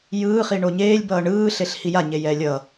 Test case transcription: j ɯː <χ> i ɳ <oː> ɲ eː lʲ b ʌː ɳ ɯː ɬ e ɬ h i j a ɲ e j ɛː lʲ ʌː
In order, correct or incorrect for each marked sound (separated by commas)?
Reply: correct, incorrect